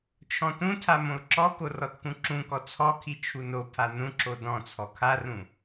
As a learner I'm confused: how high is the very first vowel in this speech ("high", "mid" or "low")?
mid